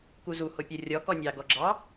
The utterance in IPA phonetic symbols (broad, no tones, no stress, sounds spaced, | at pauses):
k u z u h o pʲ ə rʲ ɔ k ɔ nʲ ɑ ɡ ɔ ɡ͡ǁ ɑ